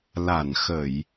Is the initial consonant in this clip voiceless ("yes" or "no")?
no